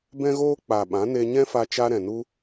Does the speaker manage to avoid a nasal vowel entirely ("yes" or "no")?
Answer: no